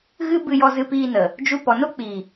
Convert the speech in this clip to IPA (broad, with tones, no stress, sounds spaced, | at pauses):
ɣ ɨ˦ b ɨ˧ j ɔ˧ z ɨ˧ p iː˧ n ə˨ | d͡ʒ u˧ p ɔ˨ n o˦ k͡p iː˨